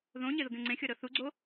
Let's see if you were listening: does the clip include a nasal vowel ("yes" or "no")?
yes